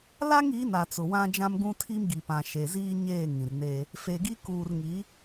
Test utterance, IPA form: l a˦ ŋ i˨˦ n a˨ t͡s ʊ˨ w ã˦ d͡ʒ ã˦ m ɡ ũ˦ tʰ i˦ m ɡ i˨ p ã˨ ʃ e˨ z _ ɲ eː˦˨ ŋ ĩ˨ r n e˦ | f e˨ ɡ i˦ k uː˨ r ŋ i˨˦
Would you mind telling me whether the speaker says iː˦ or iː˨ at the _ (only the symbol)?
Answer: iː˦